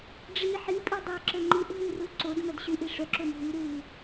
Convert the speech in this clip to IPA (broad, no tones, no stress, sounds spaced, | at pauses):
ɖ͡ʐ i ħ i pʼ i dˤ ø ǁ ə ŋ͡ǃ i ʔ ɦ u r u ǀ o d m œ d ɕ y ʔ i ʂ œ ǁ o m ɦ y ɾ u